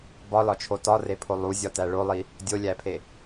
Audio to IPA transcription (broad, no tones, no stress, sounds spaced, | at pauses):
b ɒ l ɒ t͡ʃʰ o t ɒ r e pʰ o lˠ u zʲ ɒ t æ ɭ o lˠ i | dʲ o lʲ æ pʰ e